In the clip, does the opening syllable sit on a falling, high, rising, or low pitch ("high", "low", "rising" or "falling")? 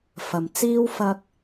low